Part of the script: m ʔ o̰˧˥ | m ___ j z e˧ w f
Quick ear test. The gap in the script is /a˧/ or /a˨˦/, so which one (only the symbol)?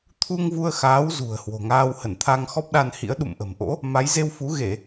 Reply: a˨˦